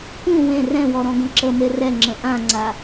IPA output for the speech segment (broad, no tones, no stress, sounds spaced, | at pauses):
k ũ w ẽ r ɛ̃ w ɔ ɾ ɔ̃ ɡ ə̃ ǁ ə m e r ɛ ŋ͡ǁ ə̃ ʔ ã ŋ͡ǀ a